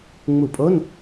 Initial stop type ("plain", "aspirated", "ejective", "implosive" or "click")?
ejective